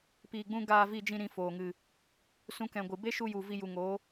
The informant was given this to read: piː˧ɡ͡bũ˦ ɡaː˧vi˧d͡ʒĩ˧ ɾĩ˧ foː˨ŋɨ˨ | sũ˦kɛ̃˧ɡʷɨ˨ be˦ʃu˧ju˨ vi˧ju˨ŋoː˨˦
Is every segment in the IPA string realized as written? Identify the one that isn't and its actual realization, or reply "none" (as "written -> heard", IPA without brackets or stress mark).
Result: none